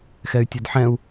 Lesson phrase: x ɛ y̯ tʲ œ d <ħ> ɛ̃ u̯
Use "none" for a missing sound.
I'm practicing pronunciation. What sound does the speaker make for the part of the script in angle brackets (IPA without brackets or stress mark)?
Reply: ħ